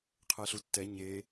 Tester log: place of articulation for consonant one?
uvular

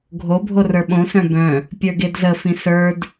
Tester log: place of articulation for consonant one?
velar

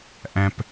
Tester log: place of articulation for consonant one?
glottal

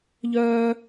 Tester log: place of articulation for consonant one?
palatal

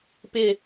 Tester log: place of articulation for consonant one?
labial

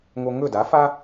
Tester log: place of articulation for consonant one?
velar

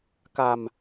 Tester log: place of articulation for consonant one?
velar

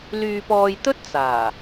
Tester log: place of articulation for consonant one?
alveolar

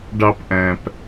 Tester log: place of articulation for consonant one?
retroflex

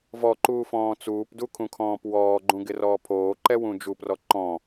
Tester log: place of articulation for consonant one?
labial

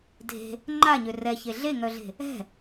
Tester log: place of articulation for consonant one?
alveolar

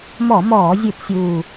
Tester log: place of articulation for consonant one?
labial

